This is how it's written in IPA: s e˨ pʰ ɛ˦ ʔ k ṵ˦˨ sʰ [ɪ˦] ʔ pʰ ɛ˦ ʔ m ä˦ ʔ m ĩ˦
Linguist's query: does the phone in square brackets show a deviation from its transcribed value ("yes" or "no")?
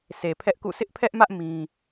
no